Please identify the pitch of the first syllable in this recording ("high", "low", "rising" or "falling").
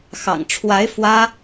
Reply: low